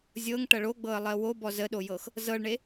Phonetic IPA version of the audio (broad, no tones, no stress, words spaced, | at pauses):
zʲɤŋʈɐ ɭoɡ͡bɤə̯lˠɜ wobɔ zəɗojɤx | zɤɭɳe